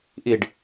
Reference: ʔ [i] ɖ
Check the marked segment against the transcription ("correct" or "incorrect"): correct